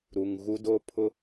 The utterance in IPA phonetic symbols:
ɾu˨ŋ ɣu˦doː˦pʰʊ˦

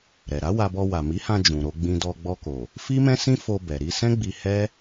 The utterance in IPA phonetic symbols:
ɾɛ˨ɾa˨˦wa˧bɔ˧ wa˨mi˨˦hã˧ d͡ʒũ˨ɾo˧ɡ͡bĩ˧dɔ˧ ɡ͡bɔ˧ko˨ | fi˦mɛ̃˦sĩ˦ fo˧bɛ˨ ɾi˧sɛ̃˦ ɡ͡bi˧hɛ˦

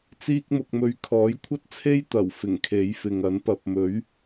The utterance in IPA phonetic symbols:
t͡siː˧k̚mʊ˨k̚mɵ˨˧ɥ kʰɔː˨˥jkʷʰɐ˥t̚t͡sʰe˥j t̪ɐ˨˩w fɪ˨˩ŋkʰe˨˥jfɪ˨ŋɐ˨˥n pɐ˨p̚mɵ˨˥ɥ

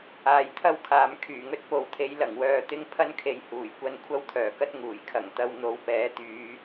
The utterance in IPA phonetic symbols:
aː˨jt̪ʰɐ˥wkʰaː˨m kʰyː˨˩ŋɵ˥t̚po˨wt̪ʰe˨˥j lɐ˨˩ŋwœː˧t̪ɪ˥ŋ pʰɐ˥nkʰe˨j huː˨˩jkʷɐ˧n kʷʰɐ˥wt̪ʰœː˨˩kɐ˥t̚ ŋuː˨˩jkʰɐ˨˩ŋt̪ɐ˧w n̪o˨˧w pɛː˨˥t̪yː˨˧

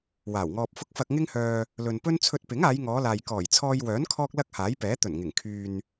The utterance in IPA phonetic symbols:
waː˨˩wŋɔː˧p̚fʊ˥k̚ fɐ˧k̚ŋɪ˥ŋhœː˧ | lɵ˨npɵ˥n t͡sʰɵ˧t̚pɪ˨˥ŋ aː˨˧jŋɔː˨˧laː˨j kɔː˨˩jt͡sʰɔː˧jwœː˨˥n kʰɔː˥k̚lɐ˥k̚haː˨˥jpɛː˨˥ t̪ɵ˨˩nŋɪ˨˩ŋ kʰyː˨n

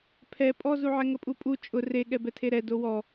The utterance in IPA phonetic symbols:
pʰɛ pʼɔzuʕɛ ŋəpʼupʼu t͡ʃʼʊ reɠɛbɛ tʰeɾɛ dowɔ

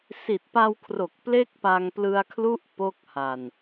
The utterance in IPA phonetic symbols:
si˨˩t̚pa˧wkʰro˨˩k̚ ple˥˩k̚pa˧ŋplɯ˧a̯kʰlu˥˩ʔ po˦˥k̚ha˨˩n

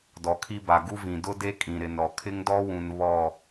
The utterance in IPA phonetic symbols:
dɔ˨kʰi˦ba˨ ɡu˦vĩ˨ dʊ˦de˦ kʼĩ˨ ɾɪ˨nɾɔ˨ kʰɪ˦ŋdɔ˦wũ˨n βɔ˦˨

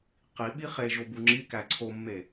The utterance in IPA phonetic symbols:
qiɓi χe ʒobuŋ͡ǁikæ ǀʰomːe

